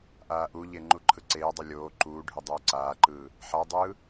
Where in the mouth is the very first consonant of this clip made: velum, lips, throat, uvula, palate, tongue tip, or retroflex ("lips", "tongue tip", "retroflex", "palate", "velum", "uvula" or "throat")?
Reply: throat